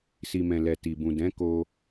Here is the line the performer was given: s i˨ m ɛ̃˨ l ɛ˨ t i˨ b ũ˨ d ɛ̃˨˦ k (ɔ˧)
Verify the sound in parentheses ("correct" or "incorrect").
incorrect